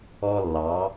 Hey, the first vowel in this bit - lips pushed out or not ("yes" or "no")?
yes